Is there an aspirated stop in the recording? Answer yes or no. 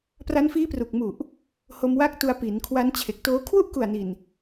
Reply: yes